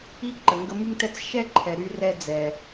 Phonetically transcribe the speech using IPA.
i˦ ǃ ə˩ ŋ ɡ ə˦ m y˥ ŋ t ɛ˥ t͡s ʃ ɛ˥ ǃʰ ɛ˩ ɾ y˦ r ɛ˦ d͡z ɛ˩

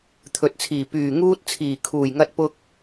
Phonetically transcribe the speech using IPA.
t̪ʰ ɵ˨ t̚ t͡sʰ iː˨˩ p yː˨˩ ŋ uː˧ t̚ t͡sʰ iː˨˩ kʰ uː˨˩ j ŋ ɐ˧ t̚ p ʊ˧ k̚

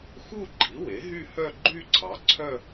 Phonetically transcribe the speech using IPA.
x u˥˧ ɡ͡ǃ i˩˥ w e˩˥ ɦ y˥˧ h œ˥˧ ɡ͡ǃ y˥˧ ǀʰ ɑ˩˥ ǀʰ œ˥˧

